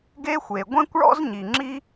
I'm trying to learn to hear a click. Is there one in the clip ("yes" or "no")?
yes